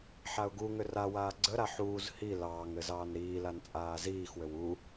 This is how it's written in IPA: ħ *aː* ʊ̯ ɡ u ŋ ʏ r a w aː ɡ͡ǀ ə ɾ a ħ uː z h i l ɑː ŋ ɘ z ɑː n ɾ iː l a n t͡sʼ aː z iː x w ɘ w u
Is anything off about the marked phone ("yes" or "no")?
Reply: yes